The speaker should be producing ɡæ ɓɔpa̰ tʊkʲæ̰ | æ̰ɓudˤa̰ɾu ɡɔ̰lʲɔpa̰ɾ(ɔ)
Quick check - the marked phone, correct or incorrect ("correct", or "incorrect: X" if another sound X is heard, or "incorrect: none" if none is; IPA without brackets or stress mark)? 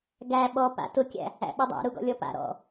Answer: incorrect: ɔ̰